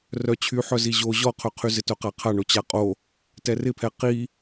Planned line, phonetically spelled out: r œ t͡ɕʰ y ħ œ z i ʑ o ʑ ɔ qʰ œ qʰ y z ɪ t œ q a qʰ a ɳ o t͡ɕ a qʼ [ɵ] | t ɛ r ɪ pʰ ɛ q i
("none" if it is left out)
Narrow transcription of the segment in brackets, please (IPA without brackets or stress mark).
o